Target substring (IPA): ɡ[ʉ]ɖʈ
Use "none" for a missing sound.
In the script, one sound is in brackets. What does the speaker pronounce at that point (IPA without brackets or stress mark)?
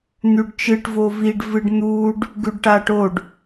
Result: ʉ